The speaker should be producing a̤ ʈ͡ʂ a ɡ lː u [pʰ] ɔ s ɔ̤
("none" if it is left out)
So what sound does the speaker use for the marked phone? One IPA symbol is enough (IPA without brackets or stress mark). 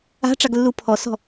pʰ